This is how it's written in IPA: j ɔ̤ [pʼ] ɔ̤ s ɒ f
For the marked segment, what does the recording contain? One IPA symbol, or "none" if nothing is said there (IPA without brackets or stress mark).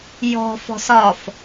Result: f